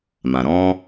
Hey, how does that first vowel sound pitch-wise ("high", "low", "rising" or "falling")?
low